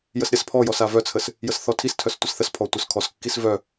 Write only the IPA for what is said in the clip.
jəsɾʲaspʰɔjɔs avœt͡sʰəs | jəsθɔtʰistʰœs tʷəsθəspʰɔ tʷœskʰɔskːis vœ

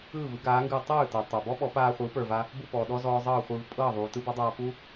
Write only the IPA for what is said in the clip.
ɯː˥˩vɯ˩˥ɡaː˩˥ŋɡɯː˧ tˤɯː˥˩ tɤ˩ tˤa˩bɔ˥ ɓɔ˩˥ paː˧ χʷɨː˩˥pə˞˩va˧ | bu˥˩pɔː˩ ɗɔ˥zɔː˧ zˤɤː˥˩χʷɯː˧v pʼɤː˥˩ðˤuː˩ tɯ˥bɤ˩˥ dˤaː˧pu˥

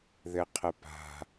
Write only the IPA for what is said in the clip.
ðɘqʰəpa̤

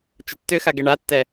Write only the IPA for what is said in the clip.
t͡ʃətːʏxa ɡɛɳatːɛ

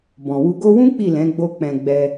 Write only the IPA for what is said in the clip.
bɔ̃˨wu˧ɡo˦ wũ˦ k͡pi˦˨lɛ̃˨˦ɡ͡bo˧ k͡pɛ̃˨ ɡ͡bɛ˧

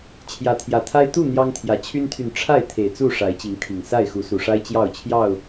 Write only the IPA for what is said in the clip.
t͡ɕʰjä˨˦t̪ʰjä˨˩t̪ʰa˦ɪ̯ t̪u˥˨ n̪jɑ˦ŋt̪ʰjä˨˩ t͡ɕʰy˦nt̪ʰy˨n ʈ͡ʂʰa˥˨ɪ̯ t̪ʰe˨˩ɪ̯t͡su˥˨ ʂa˨˦ɪ̯t͡ɕi˨˦ŋt̪ʰi˨˩ŋ sa˥˨ɪ̯xu˨˦su˨˩ʂa˦ɪ̯ t͡ɕjɑ˥˨ʊ̯t͡ɕʰjɑ˥˨ʊ̯

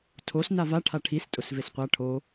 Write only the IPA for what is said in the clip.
tʰos navaʈʰa ʈʰis tʼʊsvesqʷa ʈʰo

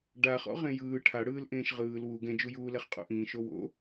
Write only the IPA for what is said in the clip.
ɖaχɔ̰ ʁẽjɯː ʈʰaɽɯːlʔẽːʃ ʁɯːl wu ɡɛ̃d͡ʒujuː lɛχqʼo̰ʔĩːʃ owo̰

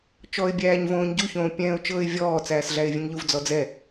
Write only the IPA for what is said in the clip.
t͡ʃɔːɪ̯bʲæːɲvõːɲɟu çõːpʲɛ̃ːʊ̯t͡ʃɤːɪ̯vʲɔː t͡sæːsɮæɪ̯vʲɛ̃ŋʎuv d͡zɔd͡zɛ

